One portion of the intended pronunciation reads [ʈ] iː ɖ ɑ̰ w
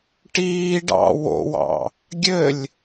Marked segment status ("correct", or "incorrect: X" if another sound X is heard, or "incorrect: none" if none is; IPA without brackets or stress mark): correct